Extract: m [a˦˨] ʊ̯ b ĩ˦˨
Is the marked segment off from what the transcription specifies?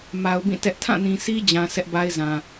yes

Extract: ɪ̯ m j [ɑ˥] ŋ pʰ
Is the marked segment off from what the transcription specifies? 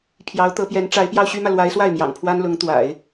yes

